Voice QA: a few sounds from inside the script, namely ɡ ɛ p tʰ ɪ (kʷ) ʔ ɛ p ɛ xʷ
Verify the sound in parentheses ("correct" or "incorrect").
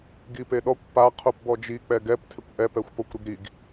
correct